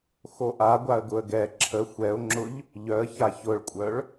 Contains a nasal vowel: no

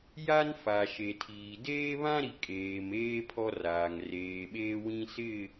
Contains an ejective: yes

